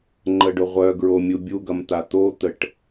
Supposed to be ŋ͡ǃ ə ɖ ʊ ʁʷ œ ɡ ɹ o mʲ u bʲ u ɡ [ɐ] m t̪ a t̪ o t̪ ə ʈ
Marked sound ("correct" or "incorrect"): correct